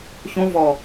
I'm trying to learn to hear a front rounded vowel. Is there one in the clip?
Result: no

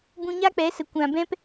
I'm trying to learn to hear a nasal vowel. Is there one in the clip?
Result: yes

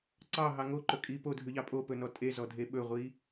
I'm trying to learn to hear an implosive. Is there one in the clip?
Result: yes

